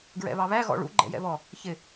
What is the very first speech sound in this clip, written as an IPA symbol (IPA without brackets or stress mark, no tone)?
ɡ